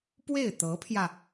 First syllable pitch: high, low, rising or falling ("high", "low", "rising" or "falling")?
falling